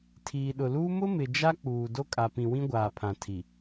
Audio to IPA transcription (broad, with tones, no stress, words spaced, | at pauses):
tʰiː˨ɗʊ˨luː˦ mʊ˦mɪ˨ d͡ʒa˦k͡puː˨ do˦kʼa˨pĩ˨wĩ˦ ɡʷaː˨pʰã˨tʰi˨